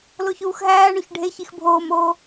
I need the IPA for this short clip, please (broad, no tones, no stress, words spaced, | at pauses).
loçuːxɦæːɳoç ɖʱeçix bʱoːmoː